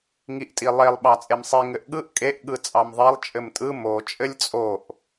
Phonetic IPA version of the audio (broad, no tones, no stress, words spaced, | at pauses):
ŋiʔtʼilˠelˠ ɓɑt͡sʼemsˤi ŋɘʔɠɯʔ kʼeʔ ɠɯt͡sʼɑmðˤelˠ t͡ʃʼɘmtʼɯ mo t͡ʃʼɘlʲt͡sʼoʔ